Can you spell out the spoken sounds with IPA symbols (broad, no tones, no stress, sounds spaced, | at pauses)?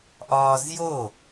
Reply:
ʔ ɒː z j o